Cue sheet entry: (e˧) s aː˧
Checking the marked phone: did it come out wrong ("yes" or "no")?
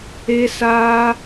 no